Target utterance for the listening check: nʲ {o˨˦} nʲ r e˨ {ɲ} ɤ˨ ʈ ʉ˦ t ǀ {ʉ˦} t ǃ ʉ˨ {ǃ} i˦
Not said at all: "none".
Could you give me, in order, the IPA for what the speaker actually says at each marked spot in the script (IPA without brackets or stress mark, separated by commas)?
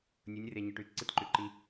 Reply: o˨˦, ɲ, ɨ˦, ǃ